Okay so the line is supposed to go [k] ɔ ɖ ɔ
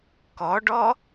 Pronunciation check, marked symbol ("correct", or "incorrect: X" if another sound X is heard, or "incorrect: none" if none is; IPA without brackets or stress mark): correct